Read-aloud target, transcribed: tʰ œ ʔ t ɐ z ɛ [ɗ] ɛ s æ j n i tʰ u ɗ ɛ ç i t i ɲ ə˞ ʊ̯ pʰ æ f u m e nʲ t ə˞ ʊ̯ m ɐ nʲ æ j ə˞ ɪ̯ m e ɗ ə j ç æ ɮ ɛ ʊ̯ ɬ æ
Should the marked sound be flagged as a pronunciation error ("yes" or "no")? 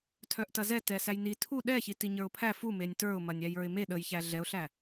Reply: yes